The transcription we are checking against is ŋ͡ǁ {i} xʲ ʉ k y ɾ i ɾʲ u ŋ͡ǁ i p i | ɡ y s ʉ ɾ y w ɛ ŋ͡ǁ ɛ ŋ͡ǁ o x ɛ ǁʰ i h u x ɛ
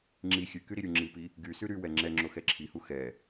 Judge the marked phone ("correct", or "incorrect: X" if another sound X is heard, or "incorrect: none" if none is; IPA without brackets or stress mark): correct